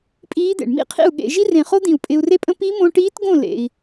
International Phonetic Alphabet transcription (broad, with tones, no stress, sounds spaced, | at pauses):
pʼ iː˧˥ d̪ ḛ˩ ɳ m ḭ˥ qʰ ḭ˥˩ u̯ ɠ ḛ˧ ʒ i˥ r ẽ˧˩ χ o˥ d̪ ĩ˧˩ u̯ pʼ ɪ˧ u̯ r e˥ pʼ ə̃˥ p i˧˥ m õ˧ ʈ iː˧˥ t ɡ õ˥˩ l ḛ˧ i̯